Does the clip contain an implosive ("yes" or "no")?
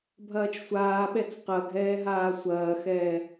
yes